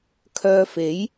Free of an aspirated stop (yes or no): no